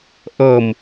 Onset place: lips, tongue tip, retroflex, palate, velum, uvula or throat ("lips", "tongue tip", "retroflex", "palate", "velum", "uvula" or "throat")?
throat